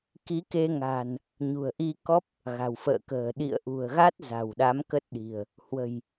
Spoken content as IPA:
ki˨˦ke˧ŋa̤˨˩n | ɲṳ˨˩ə̯ʔi˧kɔ˦˥p̚ | ɣa̤˨˩wfə̰ː˧˨kə̤ː˨˩ ɗḭ˧˨ə̯ʔṳ˨˩ə̯ɣa˦˥t̚ za̤˨˩wɗa˨˦m kə˦˥t̚ɗi̤˨˩ə̯ | hwə̤˨˩j

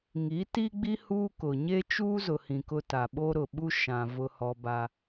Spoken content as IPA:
ŋi˨˦ti˦ɡ͡bi˦ huː˦kʊ˨ ɲe˦t͡ʃuː˦zʊ˨hĩ˨ kʊ˦ta˨ ɓo˦ɾʊ˨ɓu˦ ʃã˨ vʊ˦hɔ˦ ba˦

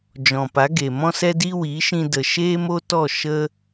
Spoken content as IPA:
d͡ʒɔ̃˨pa˨˦ɡe˨ mɔ̃˦sɛ˦di˦ wi˨˦ʃĩ˧də˨ ʃeː˦mo˦tɔ˦˨ ʃə˦

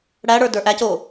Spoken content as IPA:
ɽæɽə˞ də˞ʔæco

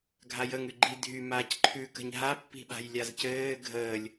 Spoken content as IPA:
ɡʱajəŋ ʉɡ͡ǃi dʱy maːcǃʰʉ kə̤ɲɦa pːi̤ɓa̤jlʲazcɘː ɡʱəːlʲ

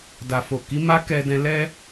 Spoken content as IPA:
da˨fo˨ ki˨˦ma˦ kɛ˧dɛ̃˧ lɛ˦

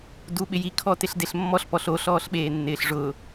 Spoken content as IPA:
duɓɪji kʰɔtɪɬdeɬmːɔɬ pɔɬo ɬɔːɬɓeːnːɪːɬʐʊː

